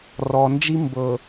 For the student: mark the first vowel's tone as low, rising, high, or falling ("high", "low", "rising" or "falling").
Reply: low